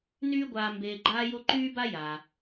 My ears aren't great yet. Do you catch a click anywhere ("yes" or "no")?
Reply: yes